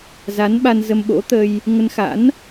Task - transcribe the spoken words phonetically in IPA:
za˨˦nɓa˧nzə˧m ɓo̰˧˥t̪ə˧j | ŋə˧nxa̰˧˥n

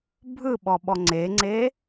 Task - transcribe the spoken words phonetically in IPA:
bʱɯɓɔɓɔ ŋ͡ǀeŋ͡ǀe

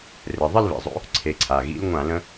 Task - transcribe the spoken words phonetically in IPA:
rɘ˩˧˩ðˤə˥˧lβḭ˩˧˩zˤo̰˨˦ | ǀʰe˨˦ǀʰa˩˧˩ ɣḭ˨˦lŋʷã˧˩˧lə̃˨˦

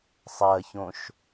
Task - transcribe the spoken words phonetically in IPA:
sˤɜçõʃ

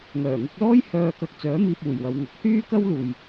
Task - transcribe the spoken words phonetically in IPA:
ŋœː˨˩ŋʊ˧k̚lɔː˥j hœː˧kɐ˧k̚t͡sœː˨˥ miː˧p̚uː˨˩jwɐ˨wŋɐ˨˥k̚ hyː˥kɐ˥w luː˨j

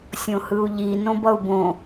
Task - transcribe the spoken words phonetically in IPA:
sʲõhɯu̯ʎi nõbʌu̯bõ

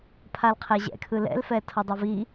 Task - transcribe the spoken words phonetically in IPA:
pʰalqʰeʑɛ̰ kʰɯlɛ̰lfɛ tʰʌdˤovi

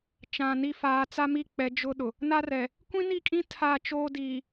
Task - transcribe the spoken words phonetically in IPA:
t͡ʃã˨ni˦˨ faː˨t͡sa˦mi˦˨k͡pɛ˨˦ d͡ʒʊ˦ɗʊ˨ | na˦rɛ˨ | kʷĩ˦ni˦˨kʼĩ˦ tʰa˦˨t͡ʃoː˦diː˨

